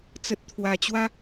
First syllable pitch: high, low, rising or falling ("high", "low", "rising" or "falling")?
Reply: low